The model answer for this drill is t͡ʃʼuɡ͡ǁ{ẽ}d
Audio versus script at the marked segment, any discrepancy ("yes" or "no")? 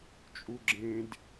no